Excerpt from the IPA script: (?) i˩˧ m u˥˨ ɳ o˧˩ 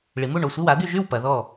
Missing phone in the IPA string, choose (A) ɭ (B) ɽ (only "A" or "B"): A